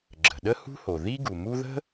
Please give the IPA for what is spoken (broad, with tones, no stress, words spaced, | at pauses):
ɡ͡ǁə̤˩ɗə˥ hṳ˥ho˩ ði˥ɡu˩mu˥ ðə̤˥